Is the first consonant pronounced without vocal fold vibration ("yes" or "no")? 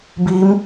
no